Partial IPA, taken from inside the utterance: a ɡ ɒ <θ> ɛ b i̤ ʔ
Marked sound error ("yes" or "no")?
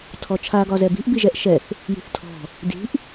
yes